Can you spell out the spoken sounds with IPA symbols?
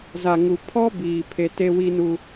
z a˨ ŋ u˨ pʰ ɔ˦ b iː˨ pʰ e˦ t e˦ w i˦ n u˦

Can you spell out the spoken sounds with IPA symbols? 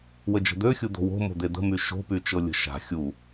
w ə d͡ʒ ə̤ d̪ ø xʲ u d̪ o̤ w o̤ m o̤ d̪ e d̪ ə̤ m y ʃ o̤ p y t͡ʃ ɤ lʲ ə̤ ʃ a̤ xʲ u

